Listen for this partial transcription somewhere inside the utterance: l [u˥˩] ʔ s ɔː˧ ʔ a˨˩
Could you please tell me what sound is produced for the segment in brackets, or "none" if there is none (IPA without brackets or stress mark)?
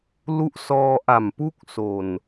u˦˥